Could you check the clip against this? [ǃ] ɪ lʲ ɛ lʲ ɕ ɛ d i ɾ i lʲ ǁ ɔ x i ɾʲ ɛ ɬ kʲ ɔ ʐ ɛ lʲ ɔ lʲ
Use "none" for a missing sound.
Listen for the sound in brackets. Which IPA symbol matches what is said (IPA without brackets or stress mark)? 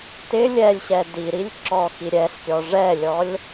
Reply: t